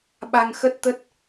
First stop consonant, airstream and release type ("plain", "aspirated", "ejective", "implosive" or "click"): implosive